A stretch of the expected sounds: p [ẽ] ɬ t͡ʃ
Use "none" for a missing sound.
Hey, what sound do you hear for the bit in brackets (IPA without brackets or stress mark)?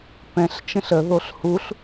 ɛ̃